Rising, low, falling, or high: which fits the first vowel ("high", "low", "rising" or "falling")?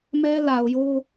high